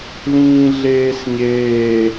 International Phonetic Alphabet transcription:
l ĩː ɮ eː s ɲ eː

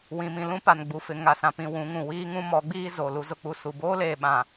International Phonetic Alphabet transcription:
w ĩ˨ m ĩ˨ l ũ˦ p a˨ n ɡ͡b u˨ f ɪ˨ ŋ a˨ s ã˨ p ĩ˨ w ũ˨˦ ŋ ũ˨ w iː˦ ŋ ũ˦ m ɔ˨˦ ɡ͡b iː˦ z o˨ l u˦ z ʊ˦ k͡p u˦ s u˨ b oː˦ l eː˨ ɓ ã˨

